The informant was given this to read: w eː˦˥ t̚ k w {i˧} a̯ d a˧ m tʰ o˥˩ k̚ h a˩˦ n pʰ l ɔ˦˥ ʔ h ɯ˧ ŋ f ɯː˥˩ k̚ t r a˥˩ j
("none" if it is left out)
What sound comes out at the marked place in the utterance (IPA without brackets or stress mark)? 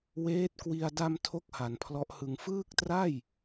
i˧